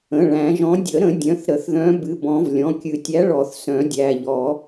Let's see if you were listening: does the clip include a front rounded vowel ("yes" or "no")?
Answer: yes